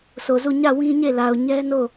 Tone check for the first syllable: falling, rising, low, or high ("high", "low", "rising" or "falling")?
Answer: low